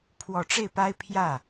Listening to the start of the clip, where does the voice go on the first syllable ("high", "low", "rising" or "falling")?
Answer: low